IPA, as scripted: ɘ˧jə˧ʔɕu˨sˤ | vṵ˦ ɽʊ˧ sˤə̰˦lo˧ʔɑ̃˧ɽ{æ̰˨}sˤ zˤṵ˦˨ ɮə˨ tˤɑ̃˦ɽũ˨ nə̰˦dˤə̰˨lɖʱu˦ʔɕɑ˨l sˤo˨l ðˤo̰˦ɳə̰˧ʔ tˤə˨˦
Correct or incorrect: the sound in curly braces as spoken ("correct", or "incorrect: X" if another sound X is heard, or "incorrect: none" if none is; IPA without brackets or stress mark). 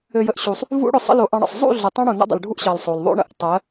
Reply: incorrect: ə̰˨